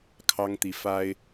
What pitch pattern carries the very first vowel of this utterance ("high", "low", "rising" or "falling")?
high